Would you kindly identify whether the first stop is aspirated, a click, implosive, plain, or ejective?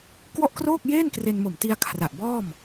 plain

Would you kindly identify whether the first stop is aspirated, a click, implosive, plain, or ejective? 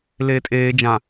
ejective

